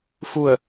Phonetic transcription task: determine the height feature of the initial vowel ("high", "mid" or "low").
high